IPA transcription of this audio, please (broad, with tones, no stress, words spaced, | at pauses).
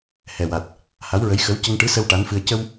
hɛ˨˩wa˨˩t̚ | ha˧˥wɹə˧˥j xə˧˥w cə˧ŋʈɨ˧˥ sə˧w ʈa˧˥nfɨ˧ə̯ cə˧w